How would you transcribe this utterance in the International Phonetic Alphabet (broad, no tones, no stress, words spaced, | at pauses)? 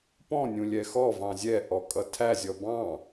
pɔ̃nʲũ lʲɛxɔvɑ̃ zʲɛʔɔ kʼʌtʰæzʲɔ bɑ̃